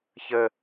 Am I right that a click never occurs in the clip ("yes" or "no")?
yes